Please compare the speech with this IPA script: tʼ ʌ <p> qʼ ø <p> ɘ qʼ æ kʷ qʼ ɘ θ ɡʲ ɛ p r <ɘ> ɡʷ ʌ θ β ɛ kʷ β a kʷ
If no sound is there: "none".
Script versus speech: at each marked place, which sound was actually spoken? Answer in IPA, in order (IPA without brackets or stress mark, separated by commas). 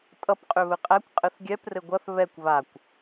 p, β, ɘ